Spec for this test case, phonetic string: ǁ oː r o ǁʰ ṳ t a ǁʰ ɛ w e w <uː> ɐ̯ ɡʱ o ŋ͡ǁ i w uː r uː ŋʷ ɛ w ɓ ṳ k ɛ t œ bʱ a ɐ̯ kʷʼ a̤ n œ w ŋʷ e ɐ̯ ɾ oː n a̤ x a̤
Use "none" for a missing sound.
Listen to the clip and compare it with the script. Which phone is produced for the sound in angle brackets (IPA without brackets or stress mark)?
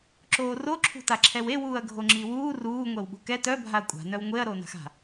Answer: uː